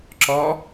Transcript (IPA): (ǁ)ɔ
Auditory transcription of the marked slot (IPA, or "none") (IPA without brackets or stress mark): ǁ